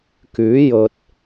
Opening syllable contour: rising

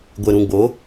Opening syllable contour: low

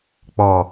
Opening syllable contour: low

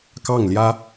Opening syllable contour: falling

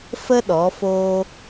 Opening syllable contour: high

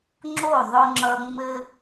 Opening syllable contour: falling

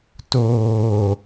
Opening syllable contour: low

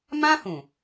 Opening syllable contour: high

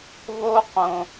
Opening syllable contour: high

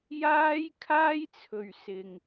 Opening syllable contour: high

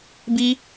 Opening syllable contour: high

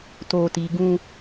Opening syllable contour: low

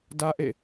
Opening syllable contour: high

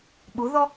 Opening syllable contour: rising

